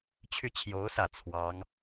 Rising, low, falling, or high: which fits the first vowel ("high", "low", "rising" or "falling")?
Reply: falling